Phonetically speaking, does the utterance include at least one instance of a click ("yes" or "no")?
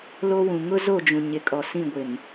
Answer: no